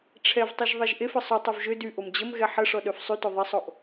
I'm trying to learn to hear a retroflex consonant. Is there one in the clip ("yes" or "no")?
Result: yes